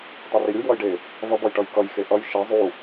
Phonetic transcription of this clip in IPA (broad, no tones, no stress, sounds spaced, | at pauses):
tˤ e r i ɾʲ u j w ʌ j ɖ e | v ʌ b ʌ j ʈ ʌ j k ʌ j x e ʔ ʌ j ʃ ɛ zˤ u